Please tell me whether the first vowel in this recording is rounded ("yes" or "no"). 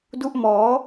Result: yes